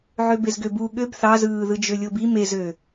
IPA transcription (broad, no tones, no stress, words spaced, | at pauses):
ʕøbezɡøbu ɠøb θɑzɯːðɯ d͡ʒølʲobi mezø